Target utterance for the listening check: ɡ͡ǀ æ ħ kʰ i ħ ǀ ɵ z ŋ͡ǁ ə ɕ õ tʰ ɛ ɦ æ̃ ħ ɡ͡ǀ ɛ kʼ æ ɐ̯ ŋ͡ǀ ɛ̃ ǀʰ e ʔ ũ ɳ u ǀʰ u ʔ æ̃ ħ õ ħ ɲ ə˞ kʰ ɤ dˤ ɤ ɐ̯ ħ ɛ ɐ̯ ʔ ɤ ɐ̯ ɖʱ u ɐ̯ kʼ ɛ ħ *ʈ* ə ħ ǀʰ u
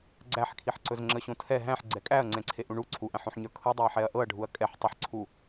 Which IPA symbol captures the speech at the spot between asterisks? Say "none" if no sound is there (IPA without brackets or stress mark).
tˤ